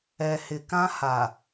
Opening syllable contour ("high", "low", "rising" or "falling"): low